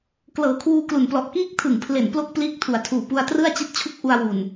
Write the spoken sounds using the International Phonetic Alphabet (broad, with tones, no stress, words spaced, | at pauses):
klɤː˨˩ kʰwuː˧klu˨˩nplɔ˨˩ʔkiː˥˩k̚ tʰɯ˨˩ŋpʰle˨˩n plo˥˩k̚pliː˦˥k̚tʰu˩˦a̯tʰuː˨˩ pu˧a̯trɯ˥˩a̯t͡ɕi˦˥t̚ t͡ɕʰu˥˩k̚ʔu˧a̯wu˨˩n